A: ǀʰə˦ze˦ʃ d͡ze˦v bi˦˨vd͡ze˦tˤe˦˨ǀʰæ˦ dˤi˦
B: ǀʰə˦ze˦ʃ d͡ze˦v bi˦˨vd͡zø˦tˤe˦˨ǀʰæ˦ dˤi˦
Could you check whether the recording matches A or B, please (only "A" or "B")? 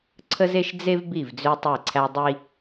B